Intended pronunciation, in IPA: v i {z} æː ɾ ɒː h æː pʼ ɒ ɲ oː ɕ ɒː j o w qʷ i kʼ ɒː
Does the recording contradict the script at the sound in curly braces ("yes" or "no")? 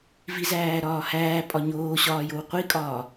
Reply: no